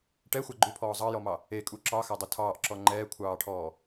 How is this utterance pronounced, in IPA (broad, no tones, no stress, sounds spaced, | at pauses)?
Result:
ʈ ɛ xʷ a ɡ͡ǃ u pʰ ɔː zˤ ɑ j ɔ m ɑ | e kʼ u ǁ ɑ x a dˤ u tʰ ɑː ʔ ǁ ɔ ŋ͡ǃ ɛː kʷʰ ɑː ʈʰ ɔː